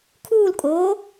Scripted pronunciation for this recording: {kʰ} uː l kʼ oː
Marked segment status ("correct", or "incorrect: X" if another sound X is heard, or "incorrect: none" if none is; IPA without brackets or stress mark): correct